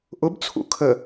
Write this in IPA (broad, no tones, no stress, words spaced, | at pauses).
ʔʊbt͡sʰṵ kʰə